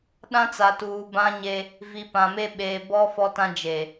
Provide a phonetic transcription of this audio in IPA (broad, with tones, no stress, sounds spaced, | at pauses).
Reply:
ɗ ã˦ t͡s a˨ t uː˨ b ã˦ ɲ e˦ | v i˨ p ã˨ m e˦ ɓ eː˨ b ɔ˦ f ɔ˦ t ã˦ d͡ʒ e˨